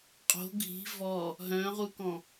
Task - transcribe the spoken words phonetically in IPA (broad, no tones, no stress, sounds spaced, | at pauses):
qʼ o̤ ɡʱ i̤ v ɔ | ɦ œ̃ ʁ u k ɔ̃